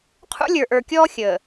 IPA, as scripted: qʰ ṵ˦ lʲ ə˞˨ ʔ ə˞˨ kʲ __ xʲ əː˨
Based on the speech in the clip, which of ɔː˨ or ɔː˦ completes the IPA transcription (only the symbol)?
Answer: ɔː˦